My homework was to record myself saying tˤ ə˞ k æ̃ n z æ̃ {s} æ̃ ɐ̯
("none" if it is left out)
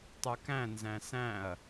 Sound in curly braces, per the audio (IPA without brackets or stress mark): s